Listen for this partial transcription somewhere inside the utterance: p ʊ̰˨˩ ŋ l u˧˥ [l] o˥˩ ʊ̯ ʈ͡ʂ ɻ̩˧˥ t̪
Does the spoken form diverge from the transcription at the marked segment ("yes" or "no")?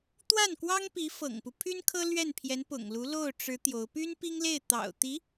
no